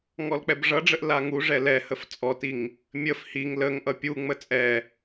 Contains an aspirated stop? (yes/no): no